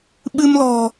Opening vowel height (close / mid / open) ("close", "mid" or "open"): close